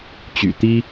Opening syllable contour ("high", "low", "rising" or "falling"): low